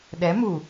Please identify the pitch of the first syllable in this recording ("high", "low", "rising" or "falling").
rising